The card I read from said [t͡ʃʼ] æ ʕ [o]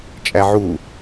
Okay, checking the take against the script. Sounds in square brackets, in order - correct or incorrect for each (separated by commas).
correct, incorrect